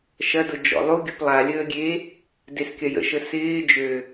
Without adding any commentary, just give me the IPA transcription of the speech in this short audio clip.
ʃ ɐ d ʊ d͡ʒ ɔ̰ lˠ u ɡʲ ʊ p lˠ a lʲ əː ɡʲ e | d e s kʲ ɐ j ə̰ ʃ ə s ɪː d͡ʒ ø

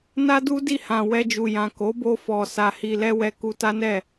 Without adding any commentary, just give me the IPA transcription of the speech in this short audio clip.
n a˦ d u˦ d i˦˨ h ã˨ w ɛ˧ d͡ʒ u˨ j ã˨ k o˨˦ b o˧ f ɔ˨ s a˧ h i˧ l ɛ˦ w ɛ˦ k u˧ t a˦ n ɛ˦˨

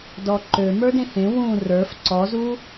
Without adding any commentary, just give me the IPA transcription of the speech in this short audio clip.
d ɔ ǃ ø m ə˞ d ẽ h ẽ w ũ r ə˞ f ǀ ɔ z u

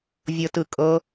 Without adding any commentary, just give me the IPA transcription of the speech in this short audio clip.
vʲ ɤ t ɯ kʼ ɤ

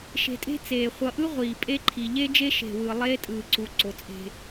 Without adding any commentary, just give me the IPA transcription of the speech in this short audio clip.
ʃ e̤˨ tʼ e̤˦ t͡s eː˨ χʷ ʌ˨ ʔ ɯ˦ ʁʷ iː˨ pʼ e˦ ǃʰ i˨ ʎ e˦ d͡ʒ e˦ ʃ e̤˨ w ɯ˨ lˠ eː˦ tʼ ɯː˨ ǀ u˨ ǀ o˨ t͡sʼ e̤˦

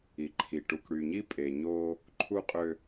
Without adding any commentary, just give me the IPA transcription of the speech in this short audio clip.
i˨ ǃʰ i˨ ʈ u˨ k ɽ y˨ ɲ i˦ pʼ e˨ ɲ oː˦ | ǃʰ u˦ qʼ ø˦

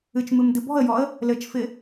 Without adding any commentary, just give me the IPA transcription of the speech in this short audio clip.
ɨ t͡ʃ m ɨ m d ɨ b ɔ̤ ə̯ j ɔ ə̯ | l ɘ t͡ʃ f ɪ

